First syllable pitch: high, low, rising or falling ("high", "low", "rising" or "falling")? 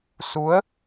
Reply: rising